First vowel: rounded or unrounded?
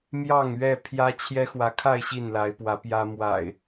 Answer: unrounded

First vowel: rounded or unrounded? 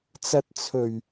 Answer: unrounded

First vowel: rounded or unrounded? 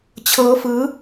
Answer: unrounded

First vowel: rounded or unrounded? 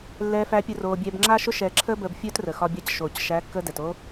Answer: unrounded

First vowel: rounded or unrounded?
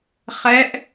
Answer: unrounded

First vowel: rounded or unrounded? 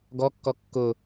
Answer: rounded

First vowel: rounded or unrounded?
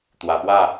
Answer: unrounded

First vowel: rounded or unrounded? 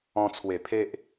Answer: rounded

